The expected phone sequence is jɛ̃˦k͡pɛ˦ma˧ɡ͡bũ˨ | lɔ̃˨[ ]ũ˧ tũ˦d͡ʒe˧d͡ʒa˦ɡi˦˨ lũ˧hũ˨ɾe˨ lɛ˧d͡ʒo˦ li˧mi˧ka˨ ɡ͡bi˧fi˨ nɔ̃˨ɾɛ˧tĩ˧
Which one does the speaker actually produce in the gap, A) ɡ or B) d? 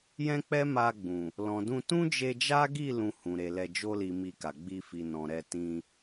B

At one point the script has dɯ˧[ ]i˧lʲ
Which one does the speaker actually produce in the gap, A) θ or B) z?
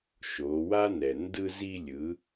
B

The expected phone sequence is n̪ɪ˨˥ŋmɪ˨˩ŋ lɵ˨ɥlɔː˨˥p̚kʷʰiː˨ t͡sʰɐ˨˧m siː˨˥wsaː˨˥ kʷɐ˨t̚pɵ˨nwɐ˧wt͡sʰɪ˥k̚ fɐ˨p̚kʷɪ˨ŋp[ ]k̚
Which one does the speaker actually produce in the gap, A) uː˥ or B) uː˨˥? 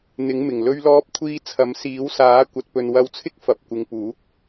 B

